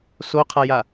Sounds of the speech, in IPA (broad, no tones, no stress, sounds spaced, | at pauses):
s o qʰ a j a